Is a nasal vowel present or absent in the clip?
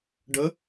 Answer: absent